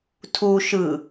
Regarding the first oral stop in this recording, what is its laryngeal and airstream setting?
aspirated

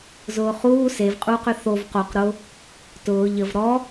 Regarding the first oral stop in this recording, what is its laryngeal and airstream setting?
ejective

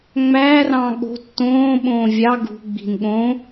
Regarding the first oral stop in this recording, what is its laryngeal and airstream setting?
implosive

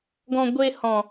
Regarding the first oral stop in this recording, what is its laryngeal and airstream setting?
plain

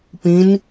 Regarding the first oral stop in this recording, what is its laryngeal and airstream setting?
plain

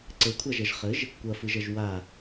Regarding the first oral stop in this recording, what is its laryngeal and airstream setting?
click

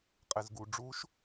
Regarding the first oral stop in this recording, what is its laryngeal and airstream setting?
ejective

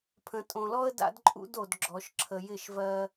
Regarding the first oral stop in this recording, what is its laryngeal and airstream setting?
aspirated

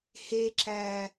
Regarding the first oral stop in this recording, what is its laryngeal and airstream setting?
click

